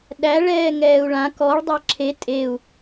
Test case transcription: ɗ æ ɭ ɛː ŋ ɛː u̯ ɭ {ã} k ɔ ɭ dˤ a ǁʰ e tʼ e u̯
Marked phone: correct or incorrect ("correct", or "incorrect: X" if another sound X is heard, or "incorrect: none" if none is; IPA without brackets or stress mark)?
correct